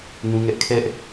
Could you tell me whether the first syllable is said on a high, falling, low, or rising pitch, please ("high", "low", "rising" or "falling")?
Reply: high